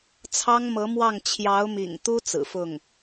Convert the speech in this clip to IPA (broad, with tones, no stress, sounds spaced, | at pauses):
t͡sʰ ɑ˥ ŋ m ɤ˧˥ m w ɑ˥˩ ŋ t͡ɕʰ j ɑ˧˥ ʊ̯ m ḭ˨˩ ŋ t̪ u˥ t͡s ɹ̩˨˩ f ʊ˥˩ ŋ